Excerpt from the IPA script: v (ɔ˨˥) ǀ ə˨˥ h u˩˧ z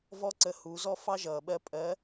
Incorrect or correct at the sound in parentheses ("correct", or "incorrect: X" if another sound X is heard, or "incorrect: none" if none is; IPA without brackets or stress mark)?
incorrect: ɔ˦